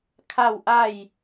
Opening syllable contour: falling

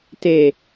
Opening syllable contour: low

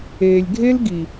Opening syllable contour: low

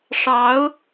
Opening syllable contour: rising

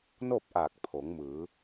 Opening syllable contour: falling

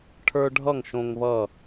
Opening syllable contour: high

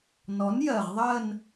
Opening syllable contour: rising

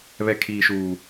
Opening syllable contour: high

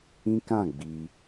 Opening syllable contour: high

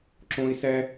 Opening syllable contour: high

